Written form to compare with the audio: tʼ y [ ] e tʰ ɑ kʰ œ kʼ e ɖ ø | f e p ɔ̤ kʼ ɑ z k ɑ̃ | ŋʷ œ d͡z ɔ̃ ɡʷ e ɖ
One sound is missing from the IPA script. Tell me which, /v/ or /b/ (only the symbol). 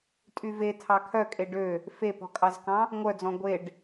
v